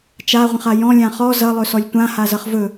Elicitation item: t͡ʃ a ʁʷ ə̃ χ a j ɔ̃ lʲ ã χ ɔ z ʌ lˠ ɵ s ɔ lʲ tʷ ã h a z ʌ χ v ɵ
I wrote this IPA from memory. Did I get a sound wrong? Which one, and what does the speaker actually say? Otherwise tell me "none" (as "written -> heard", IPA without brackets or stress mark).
none